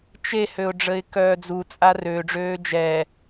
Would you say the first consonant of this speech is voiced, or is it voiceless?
voiceless